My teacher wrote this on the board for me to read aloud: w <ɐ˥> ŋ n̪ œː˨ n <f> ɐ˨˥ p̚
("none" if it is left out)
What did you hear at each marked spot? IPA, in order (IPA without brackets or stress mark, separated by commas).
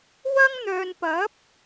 ɐ˥, p